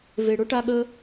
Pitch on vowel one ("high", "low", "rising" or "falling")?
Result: low